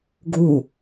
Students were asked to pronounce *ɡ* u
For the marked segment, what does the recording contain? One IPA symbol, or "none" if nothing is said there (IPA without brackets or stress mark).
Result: ɡ